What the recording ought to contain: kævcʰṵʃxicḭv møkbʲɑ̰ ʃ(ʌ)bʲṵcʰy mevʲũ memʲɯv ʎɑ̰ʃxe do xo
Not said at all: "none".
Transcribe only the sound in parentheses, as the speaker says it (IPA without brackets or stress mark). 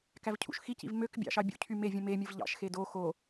ɑ